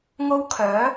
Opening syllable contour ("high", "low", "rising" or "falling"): high